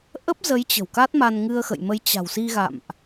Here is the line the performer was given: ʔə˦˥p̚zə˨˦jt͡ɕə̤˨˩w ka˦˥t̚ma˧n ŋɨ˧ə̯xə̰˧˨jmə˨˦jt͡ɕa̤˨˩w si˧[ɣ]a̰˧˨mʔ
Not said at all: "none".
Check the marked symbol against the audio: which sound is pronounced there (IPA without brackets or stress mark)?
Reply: ɣ